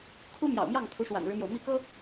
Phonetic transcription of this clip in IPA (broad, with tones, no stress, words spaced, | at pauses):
kʰu˥mjɑ̰˨˩ʊ̯mjɑ˥˩ŋ kʰu˧˥ʂwa̰˨˩nɻɻ̩˦mjo˩ʊ̯ mi˥˩kɤ˥